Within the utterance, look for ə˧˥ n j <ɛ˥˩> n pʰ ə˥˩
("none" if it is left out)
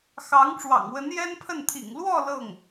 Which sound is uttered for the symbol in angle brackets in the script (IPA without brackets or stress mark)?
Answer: ɛ˥